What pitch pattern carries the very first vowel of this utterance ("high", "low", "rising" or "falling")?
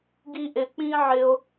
high